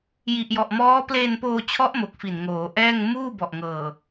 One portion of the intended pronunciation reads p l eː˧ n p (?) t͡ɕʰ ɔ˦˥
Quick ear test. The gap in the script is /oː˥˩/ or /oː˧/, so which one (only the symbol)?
oː˧